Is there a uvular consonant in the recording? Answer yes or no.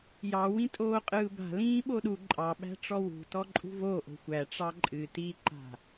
yes